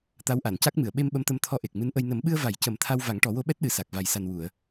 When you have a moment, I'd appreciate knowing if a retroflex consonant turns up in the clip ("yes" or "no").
yes